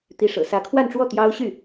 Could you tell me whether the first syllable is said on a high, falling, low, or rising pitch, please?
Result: rising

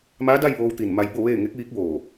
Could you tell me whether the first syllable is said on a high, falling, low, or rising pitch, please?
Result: rising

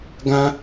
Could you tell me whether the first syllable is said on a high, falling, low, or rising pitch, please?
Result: high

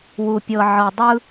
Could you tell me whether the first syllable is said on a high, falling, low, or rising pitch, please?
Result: low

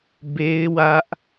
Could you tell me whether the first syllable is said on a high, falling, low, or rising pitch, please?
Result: high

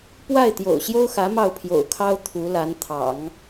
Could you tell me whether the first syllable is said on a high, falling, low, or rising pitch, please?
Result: falling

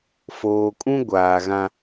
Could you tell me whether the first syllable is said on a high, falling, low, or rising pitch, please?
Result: low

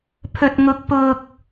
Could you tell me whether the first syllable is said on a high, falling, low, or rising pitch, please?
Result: low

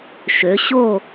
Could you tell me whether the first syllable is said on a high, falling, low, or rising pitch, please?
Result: rising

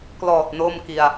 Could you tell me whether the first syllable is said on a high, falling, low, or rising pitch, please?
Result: low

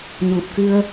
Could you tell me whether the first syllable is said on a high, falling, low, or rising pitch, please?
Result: low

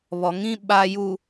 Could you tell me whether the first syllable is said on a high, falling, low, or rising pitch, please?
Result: low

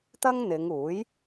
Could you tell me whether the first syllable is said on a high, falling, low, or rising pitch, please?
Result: high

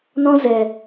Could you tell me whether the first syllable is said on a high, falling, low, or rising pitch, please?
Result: high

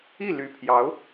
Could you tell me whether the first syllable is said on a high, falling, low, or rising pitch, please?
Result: falling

